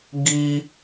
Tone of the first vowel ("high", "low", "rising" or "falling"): high